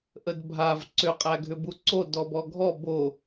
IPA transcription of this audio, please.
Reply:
ʔ ə d bʱ a v ǀ ʏ qʼ æ ɡʱ ʏ b u ǀ o d ɔ b ɔ ɡʱ ɔ b o

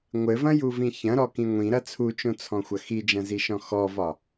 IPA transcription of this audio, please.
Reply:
ŋʷ ɘ v ɐ̃ j u v ĩ ç ɐ̃ ɾ ɔ k ĩ ŋʷ ĩ ɾ ɐ t͡sʰ u t͡ʃ õ t͡sʰ ɔ̃ xʷ ɐ x i d͡ʒ ɐ̃ z i ʃ ɔ̃ x ɔ v ɒ

